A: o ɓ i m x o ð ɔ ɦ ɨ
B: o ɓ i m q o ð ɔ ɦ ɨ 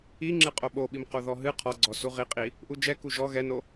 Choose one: B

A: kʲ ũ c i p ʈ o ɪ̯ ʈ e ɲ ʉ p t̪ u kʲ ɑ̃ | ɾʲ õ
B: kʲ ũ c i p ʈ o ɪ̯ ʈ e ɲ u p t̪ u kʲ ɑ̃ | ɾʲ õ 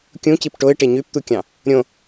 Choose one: A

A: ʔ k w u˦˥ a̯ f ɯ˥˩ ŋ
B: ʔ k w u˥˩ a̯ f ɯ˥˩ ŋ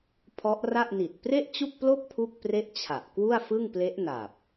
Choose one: B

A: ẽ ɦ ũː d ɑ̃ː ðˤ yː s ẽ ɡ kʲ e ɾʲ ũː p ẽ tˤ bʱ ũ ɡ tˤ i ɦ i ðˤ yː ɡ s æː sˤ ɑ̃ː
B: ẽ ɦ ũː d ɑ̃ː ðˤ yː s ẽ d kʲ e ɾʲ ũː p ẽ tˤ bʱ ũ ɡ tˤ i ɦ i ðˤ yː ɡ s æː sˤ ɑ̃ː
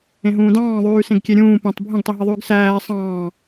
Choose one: A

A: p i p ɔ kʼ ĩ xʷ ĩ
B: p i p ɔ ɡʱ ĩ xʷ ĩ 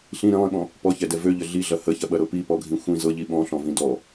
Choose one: B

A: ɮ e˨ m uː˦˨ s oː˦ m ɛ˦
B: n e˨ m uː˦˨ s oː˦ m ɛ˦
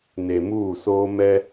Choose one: B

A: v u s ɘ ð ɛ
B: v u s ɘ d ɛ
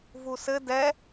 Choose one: B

